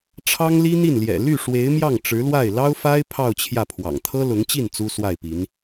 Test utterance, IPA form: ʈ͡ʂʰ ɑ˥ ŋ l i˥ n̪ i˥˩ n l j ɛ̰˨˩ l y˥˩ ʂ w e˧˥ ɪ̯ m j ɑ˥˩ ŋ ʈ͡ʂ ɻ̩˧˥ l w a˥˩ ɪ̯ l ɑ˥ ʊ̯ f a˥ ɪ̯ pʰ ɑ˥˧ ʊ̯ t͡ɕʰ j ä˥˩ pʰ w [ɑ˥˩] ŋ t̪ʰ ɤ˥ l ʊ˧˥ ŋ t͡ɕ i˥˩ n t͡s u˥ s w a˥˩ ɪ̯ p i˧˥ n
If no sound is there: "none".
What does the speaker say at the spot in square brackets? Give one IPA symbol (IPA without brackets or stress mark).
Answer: ɑ̰˨˩